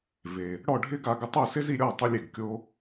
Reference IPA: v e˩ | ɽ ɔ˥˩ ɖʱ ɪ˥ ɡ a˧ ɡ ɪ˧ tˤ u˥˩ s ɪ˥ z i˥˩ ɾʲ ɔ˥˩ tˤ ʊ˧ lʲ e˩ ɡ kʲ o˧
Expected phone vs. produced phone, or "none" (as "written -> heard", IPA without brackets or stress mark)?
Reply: none